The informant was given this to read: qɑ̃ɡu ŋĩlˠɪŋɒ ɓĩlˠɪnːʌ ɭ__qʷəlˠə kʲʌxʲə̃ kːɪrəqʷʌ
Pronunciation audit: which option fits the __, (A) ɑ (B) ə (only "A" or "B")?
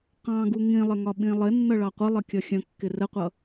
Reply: A